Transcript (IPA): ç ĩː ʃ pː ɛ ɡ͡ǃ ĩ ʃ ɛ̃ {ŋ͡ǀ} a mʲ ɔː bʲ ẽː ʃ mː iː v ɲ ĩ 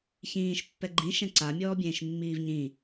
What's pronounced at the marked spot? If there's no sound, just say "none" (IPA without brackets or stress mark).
ǀ